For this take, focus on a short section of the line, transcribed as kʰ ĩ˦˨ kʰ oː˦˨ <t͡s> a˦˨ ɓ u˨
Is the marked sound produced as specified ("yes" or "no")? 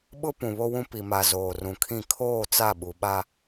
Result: yes